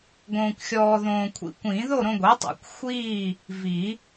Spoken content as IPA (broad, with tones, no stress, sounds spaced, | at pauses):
ɡ õː˧ kʷ xʲ ɔː˧ ð õː˧ kʷʰ ḭ˧ kʷ ĩ˨˩˦ ð o˥˨ ɾ õ˧ ɡʷ i˩˥ tˤ ḛ˨˩˦ kʷ xʷ iː˥˨ | v i˨˩˦